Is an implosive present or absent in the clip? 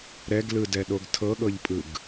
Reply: present